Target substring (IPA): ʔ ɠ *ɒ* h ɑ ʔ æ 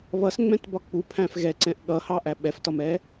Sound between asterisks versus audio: incorrect: ʌ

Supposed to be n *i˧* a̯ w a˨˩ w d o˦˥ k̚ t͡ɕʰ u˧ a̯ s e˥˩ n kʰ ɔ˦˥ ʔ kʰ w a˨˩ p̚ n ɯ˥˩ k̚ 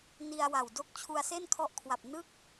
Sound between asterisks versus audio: correct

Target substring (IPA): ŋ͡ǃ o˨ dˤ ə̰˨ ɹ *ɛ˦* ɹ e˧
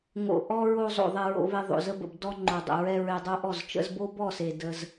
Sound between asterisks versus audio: incorrect: ɛ˧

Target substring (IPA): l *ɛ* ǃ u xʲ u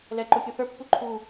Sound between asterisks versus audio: correct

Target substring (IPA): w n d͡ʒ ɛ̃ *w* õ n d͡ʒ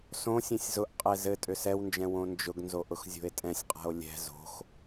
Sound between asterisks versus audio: correct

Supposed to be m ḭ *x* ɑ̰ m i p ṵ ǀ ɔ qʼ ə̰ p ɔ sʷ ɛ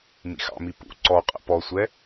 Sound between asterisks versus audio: correct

